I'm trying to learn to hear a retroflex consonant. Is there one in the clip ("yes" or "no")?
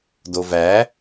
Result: no